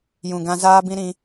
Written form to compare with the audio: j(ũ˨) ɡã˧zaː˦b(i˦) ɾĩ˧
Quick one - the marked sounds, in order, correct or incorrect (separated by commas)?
correct, incorrect